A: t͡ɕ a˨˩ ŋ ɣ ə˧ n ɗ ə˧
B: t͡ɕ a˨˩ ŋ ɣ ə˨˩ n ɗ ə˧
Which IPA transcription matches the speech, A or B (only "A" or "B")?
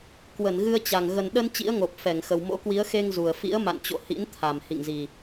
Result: B